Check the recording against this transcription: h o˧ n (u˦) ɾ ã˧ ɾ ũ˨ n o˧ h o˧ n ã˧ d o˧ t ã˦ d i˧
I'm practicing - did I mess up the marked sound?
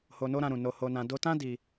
yes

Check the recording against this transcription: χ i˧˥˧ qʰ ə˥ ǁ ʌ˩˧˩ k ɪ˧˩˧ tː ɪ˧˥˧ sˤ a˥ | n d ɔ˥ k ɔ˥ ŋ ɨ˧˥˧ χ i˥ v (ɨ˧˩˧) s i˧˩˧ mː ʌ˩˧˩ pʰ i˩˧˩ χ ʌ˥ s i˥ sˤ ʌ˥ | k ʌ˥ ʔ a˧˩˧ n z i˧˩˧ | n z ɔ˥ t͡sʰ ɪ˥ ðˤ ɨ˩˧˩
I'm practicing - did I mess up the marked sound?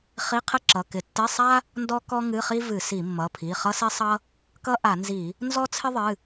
no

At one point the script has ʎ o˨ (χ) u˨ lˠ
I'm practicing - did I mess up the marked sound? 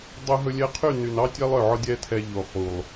no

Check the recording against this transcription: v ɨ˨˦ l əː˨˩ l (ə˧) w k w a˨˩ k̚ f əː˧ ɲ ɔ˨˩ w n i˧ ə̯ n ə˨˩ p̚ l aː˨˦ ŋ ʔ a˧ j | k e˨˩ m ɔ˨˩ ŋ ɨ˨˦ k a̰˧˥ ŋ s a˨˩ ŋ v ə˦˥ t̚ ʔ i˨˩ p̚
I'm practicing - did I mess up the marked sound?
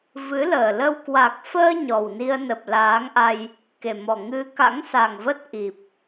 no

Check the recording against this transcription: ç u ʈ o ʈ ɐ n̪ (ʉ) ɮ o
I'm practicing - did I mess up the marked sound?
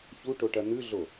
no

